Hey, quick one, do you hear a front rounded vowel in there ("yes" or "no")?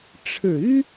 yes